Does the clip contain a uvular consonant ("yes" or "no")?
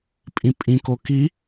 no